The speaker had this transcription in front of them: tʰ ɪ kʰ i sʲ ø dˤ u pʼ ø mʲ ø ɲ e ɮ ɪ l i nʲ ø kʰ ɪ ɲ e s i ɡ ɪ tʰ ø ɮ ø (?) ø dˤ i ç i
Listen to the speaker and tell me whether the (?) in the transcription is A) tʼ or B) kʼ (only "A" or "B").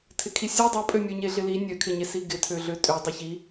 A